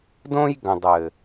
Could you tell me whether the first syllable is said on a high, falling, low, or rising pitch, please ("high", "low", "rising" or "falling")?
high